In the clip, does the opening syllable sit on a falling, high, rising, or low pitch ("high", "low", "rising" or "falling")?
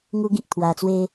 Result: high